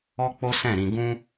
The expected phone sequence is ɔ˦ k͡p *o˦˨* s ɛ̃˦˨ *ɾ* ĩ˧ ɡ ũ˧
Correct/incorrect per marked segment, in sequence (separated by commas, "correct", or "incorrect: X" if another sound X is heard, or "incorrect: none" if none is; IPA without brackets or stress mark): incorrect: o˦, correct